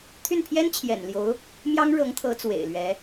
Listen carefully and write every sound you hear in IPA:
t̪ʰy˥˩npʰjɛ˥nt͡ɕʰjɛ̰˨˩nljo˧˥ʊ̯ | mjɑ˥ŋɻɤ˧˥ŋt̪ʰɤ˧˥ t͡swḛ˨˩ɪ̯lɥɛ˧˥

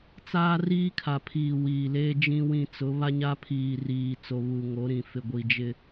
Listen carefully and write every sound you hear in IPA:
t͡saː˦riː˦kʰa˨pʰiː˨ wiː˨leː˦ d͡ʒĩ˦wĩ˦˨ t͡sʊ˨˦βa˦ɲa˦pʰiː˨ riː˨ t͡so˨βu˨ ŋo˨˦ɾĩ˨ fɪ˨ɡʷi˨ d͡ʒɪ˦

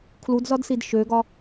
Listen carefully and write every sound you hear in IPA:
kʰludzɒdsid ʃøɡɒ

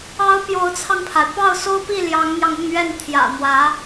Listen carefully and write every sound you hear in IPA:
ɑ˧˥ʊ̯ pjo˧˥ʊ̯t͡sʰɑ˧ŋpʰa˩ɪ̯ pɑ˥˩ʊ̯so˥ʊ̯pi˥˩ ljɑ˧˥ŋn̪jɑ˧ŋʊ˥˧ŋɥɛ˥˩n t̪ʰjä̰˨˩n̪wä˧˥

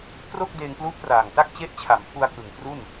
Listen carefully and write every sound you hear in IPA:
tro˥˩k̚ deː˧ŋplu˦˥ʔpraː˨˩ŋta˥˩k̚ t͡ɕe˦˥ʔt͡ɕʰa˩˦m pʰu˧a̯kɯ˨˩ŋ pru˥˩n

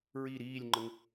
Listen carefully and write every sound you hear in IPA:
ɹi ɾiːlʲŋ͡ǃəŋ

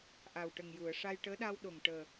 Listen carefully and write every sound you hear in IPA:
ʔa˨˩wʈə˨˩ŋju˨˩˨ə̯ ʂa˧jʈəː˧˥ɗa˧wɗo˨˩ŋ ʈəː˨˩

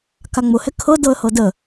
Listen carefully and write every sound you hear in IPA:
kaŋ͡mʊ hɛkʰɤ dɤə̯hɤdə

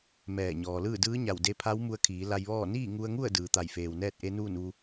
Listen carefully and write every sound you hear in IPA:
mɛː˧˩ɲɔː˩lɯː˥˨ dɯː˧˥ɲa˧˩wde˧pʰa˧˥w mu˧ə̯kʰiː˩˧ la˧jʋɔː˥˨ niː˥˨ŋu˧ə̯ŋu˥˨ə̯ dɯː˩t̪a˧˩jfeː˩wnɛː˥˨t̚ ʔe˧˥nuː˥˨nʋu˧

